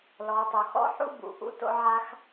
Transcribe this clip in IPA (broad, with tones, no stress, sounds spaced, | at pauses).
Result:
l ɔ˩˧ tˤ o˩ x ɔ̰˥ ħ ṵ˥ b ṵ˩ ʔ ṵ˧˥ t o̰˧ ʕ a˧ x